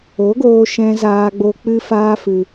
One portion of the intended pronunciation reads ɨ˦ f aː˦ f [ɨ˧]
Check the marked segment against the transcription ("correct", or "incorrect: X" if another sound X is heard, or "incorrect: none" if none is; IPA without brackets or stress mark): correct